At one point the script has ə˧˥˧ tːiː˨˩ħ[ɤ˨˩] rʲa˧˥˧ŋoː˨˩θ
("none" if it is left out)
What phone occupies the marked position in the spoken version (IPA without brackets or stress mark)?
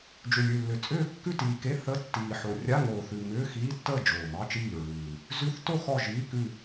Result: o˨˩